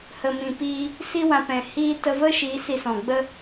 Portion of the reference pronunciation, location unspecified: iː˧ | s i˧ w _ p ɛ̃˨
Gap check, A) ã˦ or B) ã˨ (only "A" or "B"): B